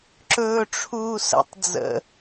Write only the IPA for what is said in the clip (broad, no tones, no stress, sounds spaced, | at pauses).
ǁ ɵː ʈ͡ʂʰ uː s ə̰ tˤ d͡z ə̰